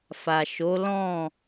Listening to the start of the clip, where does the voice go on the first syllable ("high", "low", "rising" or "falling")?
low